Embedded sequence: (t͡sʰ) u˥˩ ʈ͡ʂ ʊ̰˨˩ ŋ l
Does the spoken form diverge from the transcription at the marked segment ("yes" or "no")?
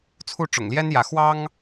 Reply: no